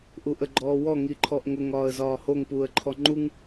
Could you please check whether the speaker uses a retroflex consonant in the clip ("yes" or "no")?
no